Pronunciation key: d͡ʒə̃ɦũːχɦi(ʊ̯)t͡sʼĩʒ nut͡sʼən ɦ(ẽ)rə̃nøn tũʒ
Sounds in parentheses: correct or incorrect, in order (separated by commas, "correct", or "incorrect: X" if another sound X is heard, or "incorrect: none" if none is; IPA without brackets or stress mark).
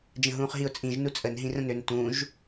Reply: correct, incorrect: ĩ